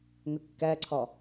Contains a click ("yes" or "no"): yes